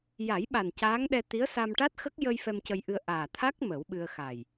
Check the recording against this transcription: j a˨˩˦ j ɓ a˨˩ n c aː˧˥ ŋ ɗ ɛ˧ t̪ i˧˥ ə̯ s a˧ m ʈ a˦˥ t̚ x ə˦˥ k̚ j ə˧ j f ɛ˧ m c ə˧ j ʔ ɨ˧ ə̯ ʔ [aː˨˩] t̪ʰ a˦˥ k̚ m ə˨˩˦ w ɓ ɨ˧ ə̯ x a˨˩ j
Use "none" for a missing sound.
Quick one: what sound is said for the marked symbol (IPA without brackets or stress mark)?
aː˨˩